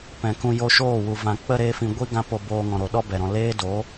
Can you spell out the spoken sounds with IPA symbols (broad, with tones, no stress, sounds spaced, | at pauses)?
p ɛ̃˨ k ũ˧ j o˧ ʃ oː˦˨ w u˨ v ã˨ k͡p ə˧ ɾ eː˧ f ĩ˨ ɡʷ i˦ ɡ ã˦ p o˧ b oː˧ ŋ ɔ̃˨ ɾ o˨ ɗ ɔ˦ b ɛ˨ ɾ ɔ̃˨ l eː˦ d o˨˦